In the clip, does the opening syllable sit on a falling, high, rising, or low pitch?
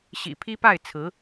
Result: low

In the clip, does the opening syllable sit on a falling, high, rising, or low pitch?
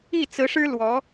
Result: falling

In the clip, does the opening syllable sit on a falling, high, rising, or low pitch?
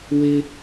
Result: high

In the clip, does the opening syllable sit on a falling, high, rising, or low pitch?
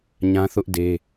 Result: high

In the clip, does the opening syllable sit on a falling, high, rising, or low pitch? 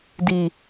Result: low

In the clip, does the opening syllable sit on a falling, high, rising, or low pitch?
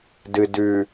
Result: low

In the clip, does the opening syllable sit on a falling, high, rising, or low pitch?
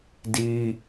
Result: high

